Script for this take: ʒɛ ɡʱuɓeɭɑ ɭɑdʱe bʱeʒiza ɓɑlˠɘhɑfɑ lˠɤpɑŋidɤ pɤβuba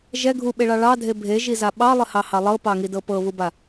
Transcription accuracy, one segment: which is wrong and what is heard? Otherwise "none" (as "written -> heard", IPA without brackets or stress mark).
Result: f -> h